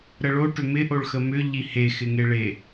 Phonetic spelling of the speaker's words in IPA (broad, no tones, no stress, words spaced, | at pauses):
ɾəɭo ʈʏmɪ ʔoɭxəmʏ ʎihe xɪŋeɭe